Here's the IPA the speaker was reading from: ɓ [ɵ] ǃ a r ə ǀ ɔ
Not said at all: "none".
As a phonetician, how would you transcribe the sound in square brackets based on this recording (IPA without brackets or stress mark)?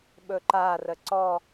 ɵ